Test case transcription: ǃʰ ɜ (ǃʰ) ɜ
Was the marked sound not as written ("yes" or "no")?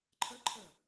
no